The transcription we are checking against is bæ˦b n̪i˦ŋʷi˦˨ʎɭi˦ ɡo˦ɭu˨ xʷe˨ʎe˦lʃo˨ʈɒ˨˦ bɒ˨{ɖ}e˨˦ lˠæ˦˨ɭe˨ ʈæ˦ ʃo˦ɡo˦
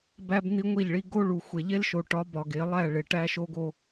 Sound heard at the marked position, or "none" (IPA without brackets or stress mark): ɡ